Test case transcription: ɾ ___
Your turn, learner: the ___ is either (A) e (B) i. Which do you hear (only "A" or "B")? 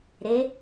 A